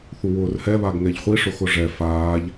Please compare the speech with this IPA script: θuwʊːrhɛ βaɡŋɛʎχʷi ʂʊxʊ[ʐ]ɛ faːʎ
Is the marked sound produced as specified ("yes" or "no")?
yes